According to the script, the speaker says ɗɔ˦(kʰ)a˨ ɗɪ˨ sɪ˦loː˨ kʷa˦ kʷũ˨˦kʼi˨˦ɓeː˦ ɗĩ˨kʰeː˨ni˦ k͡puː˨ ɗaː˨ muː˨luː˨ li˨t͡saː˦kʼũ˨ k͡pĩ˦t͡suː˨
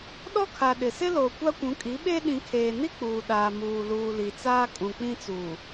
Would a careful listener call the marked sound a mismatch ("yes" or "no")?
no